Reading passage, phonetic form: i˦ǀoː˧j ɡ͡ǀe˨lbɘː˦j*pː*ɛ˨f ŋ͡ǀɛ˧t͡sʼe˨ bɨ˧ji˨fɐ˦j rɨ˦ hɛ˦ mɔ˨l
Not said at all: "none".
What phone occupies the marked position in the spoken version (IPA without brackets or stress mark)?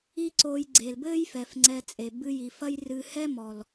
f